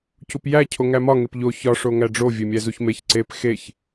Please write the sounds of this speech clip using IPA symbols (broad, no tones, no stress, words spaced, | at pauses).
cupjæ cʰoŋæmɒ ŋepʎo çɒ ʂoŋæɖ͡ʐo vʲemʲæzuçmeç ǀep xeç